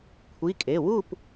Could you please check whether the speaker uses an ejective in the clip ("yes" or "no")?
yes